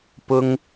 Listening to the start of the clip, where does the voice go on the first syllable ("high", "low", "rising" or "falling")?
high